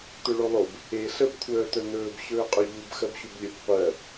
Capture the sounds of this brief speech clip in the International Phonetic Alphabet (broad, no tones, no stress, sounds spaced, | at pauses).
t ɵ ɭ o lˠ o b | e ɬ ə b kʷʰ œː t œ n ɵː b ɕ ɵː qʼ ɵ ʎ u b x ɜ b ɕ u b lʲ ɵ b qʷ ɜ